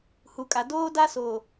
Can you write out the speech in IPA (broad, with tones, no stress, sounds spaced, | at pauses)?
h u˨ kʼ a˨ d oː˦ d a˦ s oː˨